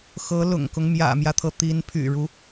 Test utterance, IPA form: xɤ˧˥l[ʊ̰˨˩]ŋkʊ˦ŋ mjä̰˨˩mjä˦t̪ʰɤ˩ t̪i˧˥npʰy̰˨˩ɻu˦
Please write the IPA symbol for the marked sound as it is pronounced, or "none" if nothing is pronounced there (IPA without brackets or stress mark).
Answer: ʊ̰˨˩